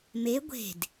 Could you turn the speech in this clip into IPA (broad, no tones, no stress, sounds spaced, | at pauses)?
m e ɡʷ e̤ d